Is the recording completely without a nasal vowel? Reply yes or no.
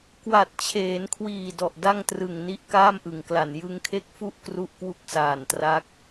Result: yes